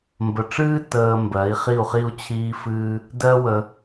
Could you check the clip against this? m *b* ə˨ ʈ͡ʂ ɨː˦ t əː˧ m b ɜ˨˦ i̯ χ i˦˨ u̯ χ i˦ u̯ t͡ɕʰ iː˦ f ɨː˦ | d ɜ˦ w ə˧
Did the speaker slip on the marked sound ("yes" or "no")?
no